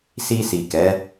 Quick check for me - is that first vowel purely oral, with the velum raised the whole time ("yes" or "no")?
yes